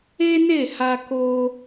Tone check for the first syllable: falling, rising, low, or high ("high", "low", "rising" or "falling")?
high